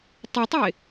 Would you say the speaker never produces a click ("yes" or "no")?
yes